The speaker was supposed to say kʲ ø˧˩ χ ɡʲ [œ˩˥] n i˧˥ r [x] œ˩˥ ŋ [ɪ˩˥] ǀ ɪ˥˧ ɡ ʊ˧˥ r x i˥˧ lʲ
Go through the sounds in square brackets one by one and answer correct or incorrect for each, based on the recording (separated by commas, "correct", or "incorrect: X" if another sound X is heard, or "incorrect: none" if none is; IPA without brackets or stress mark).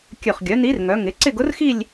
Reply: correct, incorrect: ŋ, correct